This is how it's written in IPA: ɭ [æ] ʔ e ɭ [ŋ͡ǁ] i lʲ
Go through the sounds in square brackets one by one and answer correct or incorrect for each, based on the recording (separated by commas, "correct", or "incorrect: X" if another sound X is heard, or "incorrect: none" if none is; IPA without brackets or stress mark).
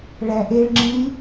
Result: correct, correct